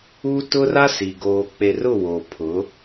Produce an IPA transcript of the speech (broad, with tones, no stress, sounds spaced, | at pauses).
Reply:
uː˦ t ʊ˦ r a˦ s i˨ ɡ oː˨ k͡p e˨ r ʊ˦˨ w oː˨ pʰ ʊ˨˦